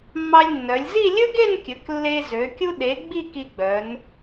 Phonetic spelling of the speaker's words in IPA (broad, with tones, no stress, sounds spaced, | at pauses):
mː ɑ˧ lʲ nː œ˩˧ lʲ z i˥˧ lʲ ɵ˥ ɡ e˥˧ n kʲ ɵ˩˧ k lː e˧ z ø˩˧ kʲ u˧ ɗ e˩˧ ɡ͡b i˥˧ k i˧ ɡ͡b œ˩˧ n